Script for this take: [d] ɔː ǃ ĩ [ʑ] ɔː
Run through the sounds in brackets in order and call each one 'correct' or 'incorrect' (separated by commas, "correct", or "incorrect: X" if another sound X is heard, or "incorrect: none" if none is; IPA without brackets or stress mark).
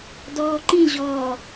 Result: correct, correct